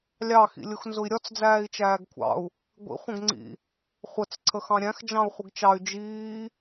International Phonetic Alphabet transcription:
lʲ ɑ x ḭ lʲ ʊ x n z ʊ i̯ ɾʲ ɒ t͡s d͡z æː i̯ t͡ʃ æː ɡ kʷʰ ɑ̰ u̯ | ɡʷ ḭ χʷ ə̃ ɡ ŋ͡ǀ ḭ | χʷ ə t͡s ǀʰ ə x ɑ̃ ɾʲ æ̃ x d͡ʒ ɑ̃ u̯ χʷ ɪ ɡ t͡ʃ ɑ y̯ d͡ʒ iː

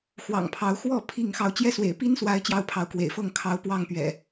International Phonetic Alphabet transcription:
x w ɑ̰˨˩ ŋ pʰ ɑ˨˦ ʊ̯ x w ɔ˥˨ pʰ i˥˨ ŋ x ɑ˨˦ ʊ̯ t͡ɕ j ɛ˦ s w ḛ˨˩ ɪ̯ p i˦ n s w a˨˦ ɪ̯ t͡ɕ j ɑ˥˨ ʊ̯ pʰ ɑ˨˦ ʊ̯ k w ḛ˨˩ ɪ̯ f ɤ˥˨ ŋ kʰ ɑ˨˦ ʊ̯ p w ɑ˥˨ ŋ p ɥ ɛ̰˨˩

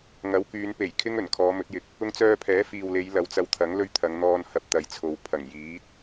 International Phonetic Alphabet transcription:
ŋ ɐ˨˥ w k yː˨˧ n p e˨˩ j kʰ ɪ˥ ŋ ɵ˨˩ n kʰ ɔː˨˧ m ɵ˨˥ t̚ j ɪ˨˥ k̚ | ʊ˧ ŋ t͡s œː˧ pʰ ɛː˨˥ f iː˨ w l e˨˧ j l ɐ˨˧ w t͡s ɐ˧ w t̪ʰ ɐ˨˥ ŋ l ɵ˥ ɥ t̪ʰ ɐ˨˧ ŋ n̪ ɔː˧ n h ɐ˧ p̚ t̪ ɐ˨ j t͡sʰ o˨ w pʰ ɐ˨˩ ŋ j iː˨˥ t̚

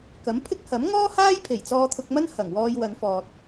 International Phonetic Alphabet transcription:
k ɐ˨˥ m pʰ ɪ˥ k̚ h ɐ˨˥ m ŋ ɔː˥ h aː˥ j pʰ e˨˩ j t͡s ɔː˧ t̪ʰ ʊ˧ k̚ m ɐ˥ n h ɐ˨˩ ŋ w ɔː˧ j w ɐ˨˧ n f ɔː˨ t̚

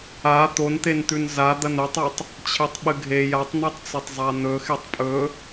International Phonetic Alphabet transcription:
a t̪ o n t̪ e n t̪ ʉ n z a d̪ ɐ n ɵ tˤ ɵ tˤ | t͡ɕʰ e tˤ ɓ ɨ ɡʱ e j a tˤ n̪ i tˤ t͡s ɐ tˤ zˤ a n̪ ɵ x e tˤ pʼ ɵ

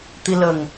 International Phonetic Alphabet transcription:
t̪ i˧ l ə˨˩ ŋ

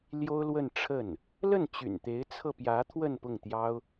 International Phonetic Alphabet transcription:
l j o˥ ʊ̯ l w ə˥˧ n ʈ͡ʂʰ ə˥˩ n | l ə˥˩ n t͡ɕ y̰˨˩ n t̪ e˧˥ ɪ̯ t͡sʰ ɤ˧ p j ä˧˥ t̪ʰ w ə˥˧ n p ʊ˥˩ ŋ t̪ j ɑ˥ ʊ̯

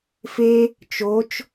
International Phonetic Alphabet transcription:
f e | t͡ʃ o t͡ʃ

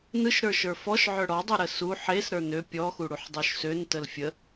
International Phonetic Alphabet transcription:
n ɯ ʃ ɾ ə˞ ʃ ə˞ f ɔ ʃ ʕ œ ɽ ɔ dˤ u ɾ ə s u ħ e s ɾ ə˞ n ø pʲ ɔ x u ɽ u ħ dˤ œ ʃ s ø n t ə l fʲ ə

